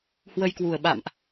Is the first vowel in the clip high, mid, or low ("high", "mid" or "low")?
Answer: mid